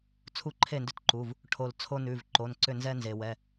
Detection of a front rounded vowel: present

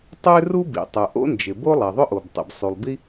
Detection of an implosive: absent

